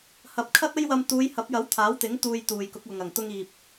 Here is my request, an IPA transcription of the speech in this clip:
h ɐ˨ p̚ kʰ ɐ˥ t̚ ɐ˥ j w ɐ˧ m t̪ uː˨˧ j h ɐ˨˥ p̚ j ɐ˨˥ w t̪ʰ aː˨˥ w t̪ ɪ˨˥ ŋ t̪ uː˧ j t̪ uː˨ j k ʊ˨˥ k̚ w ʊ˨ ŋ ɐ˨˩ ŋ t̪ ʊ˧ ŋ iː˨ p̚

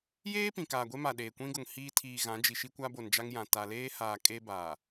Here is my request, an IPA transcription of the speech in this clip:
j eː˦ p ĩ˨ k aː˨ ɡʷ e˦ m a˨ ɗ eː˨ kʷ ĩ˦ ɡ ʊ˨ ŋ h iː˦ tʰ iː˨ ɣ ã˨˦ d͡ʒ i˨ ʃ i˦ kʷ a˦ b o˨ n d͡ʒ a˦ ŋ j ã˨ t a˨ l eː˦ h aː˨ kʼ e˦ b aː˨

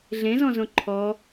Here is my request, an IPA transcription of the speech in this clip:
ɮ ẽ z ɔ̃ z õ ǃʰ ɔ

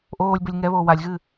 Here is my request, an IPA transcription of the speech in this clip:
ʔ oː lʲ b ɘ lʲ ŋ ɛ β oː w a lʲ ɣ ɨ

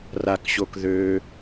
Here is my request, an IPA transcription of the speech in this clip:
r a k ɕ o k ð ø

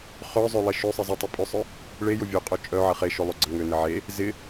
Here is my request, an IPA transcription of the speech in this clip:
χ œ zˤ ø lˠ e ʃ ø sˤ ɪ zˤ ʏ tˤ ɪ pʼ œ sˤ œ | ɭ e j ʊ vʲ ø qʼ œ t͡ʃʼ œ ʕ ɐ χ e ʃ ʊ lˠ ʏ ɡ͡ǀ ɐ ŋ ø n ɪ ʕ e | z ɪ

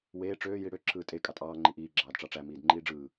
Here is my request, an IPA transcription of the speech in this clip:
w eː ʈ͡ʂ øː j i ɽ ø ǁʰ ɯː tʼ e kʼ ɑ tʼ ɑː ŋ͡ǃ i ʔ iː ɡ͡ǁ ɑː d ʈ͡ʂ ɑ ʈ͡ʂ æ m iː d ŋ͡ǃ iː ɖ͡ʐ ɯː

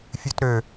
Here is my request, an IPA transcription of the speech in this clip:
fʲ ʉ t ɾ ø

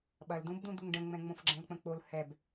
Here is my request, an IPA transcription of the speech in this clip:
ɓ ɐ l d ũ b d̪ ũ d̪ u ŋ ɖ ə̃ ŋ͡m ɛ̃ ŋ͡m õ f ɡ͡ǁ ɛ̃ l k͡p ə̃ k͡p o l h ɛ b

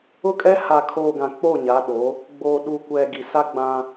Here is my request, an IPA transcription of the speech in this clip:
ʊ˦ kʼ ɛ˦ h a˨ kʰ oː˨ ɡ ã˨ k͡p o˦˨ ɲ a˨˦ ɗ o˨˦ | ɡ͡b oː˨ ɗ u˨ kʷ ɛ˨ ɡ i˨ s a˦ ɡ͡b ã˦

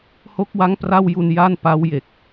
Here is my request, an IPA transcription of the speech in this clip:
h o˦˥ k̚ w a˦˥ ŋ p r a˥˩ w j u˧ n j a˥˩ n p a˦˥ w j e˨˩ k̚

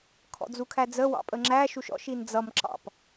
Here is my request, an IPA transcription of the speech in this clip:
kʰ ɔ̰ d͡z u kʰ æ d͡z ə w ɑ̰ pʼ ə ŋ͡ǁ æ ʃ u ʃ ɔ̰ ʃ i n d͡z ʌ m ǁ ɑ̰ p

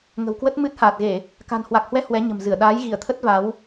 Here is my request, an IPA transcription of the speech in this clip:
ŋ ə̤˨˩ w k w ə˦˥ t̚ m ɨ˦˥ t̚ h aː˨˩ t̚ ɣ e˧˩˨ | k a̤˨˩ n h w a˨˩ k̚ h w ɛ˧ h w ɛ˨˦ ɲ ə̤˨˩ m z ɨ˧˩ ə̯ ɗ aː˨˦ j ɣ i˧˩ ə̯ t̪ʰ ə˦˥ t̚ v a˨˦ w

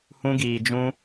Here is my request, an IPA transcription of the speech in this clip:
h ũ˦ ɡ iː˧ d͡ʒ ũ˦

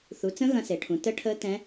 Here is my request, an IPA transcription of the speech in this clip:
θ u˨˦ t͡s ə̃˦˥ ɣ ɐ̃˦˥ s e˨˦ ʈʰ ũ˨˦ t ə˦˥ ʈʰ əː˦˥ t ɛ̃˦˥

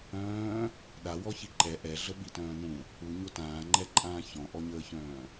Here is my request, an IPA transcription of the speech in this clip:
œ̃ː | ɗ a w ɔ ç i ǃ ɛ ʔ ɛ ɮ ə ɓ i t œ̃ː n ũ | u ɲ o t ãː ŋ͡ǃ ɛ ǃʼ ãː ç ɔ̃ ʔ ɔ ɲ əː ç œ̃ː

